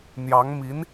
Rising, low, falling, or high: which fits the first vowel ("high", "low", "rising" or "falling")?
rising